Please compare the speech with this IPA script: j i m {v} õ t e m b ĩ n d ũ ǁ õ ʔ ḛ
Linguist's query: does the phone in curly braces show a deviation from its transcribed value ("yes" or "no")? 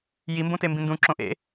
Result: yes